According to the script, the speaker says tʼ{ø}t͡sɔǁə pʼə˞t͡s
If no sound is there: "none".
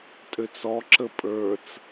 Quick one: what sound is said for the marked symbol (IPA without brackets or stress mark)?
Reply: ø